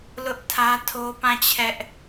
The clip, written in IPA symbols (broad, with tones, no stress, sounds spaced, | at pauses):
l ʊ˦ ʔ tʰ ä˦ tʰ o˦ p ã˦˨ t͡ɕʰ ɛ˦ ʔ